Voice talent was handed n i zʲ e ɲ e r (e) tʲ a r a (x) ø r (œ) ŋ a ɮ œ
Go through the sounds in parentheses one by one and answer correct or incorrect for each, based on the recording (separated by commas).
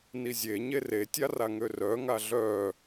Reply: correct, incorrect, correct